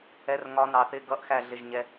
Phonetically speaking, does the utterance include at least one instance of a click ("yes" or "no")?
no